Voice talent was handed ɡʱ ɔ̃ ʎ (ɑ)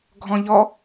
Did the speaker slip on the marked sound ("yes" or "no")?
yes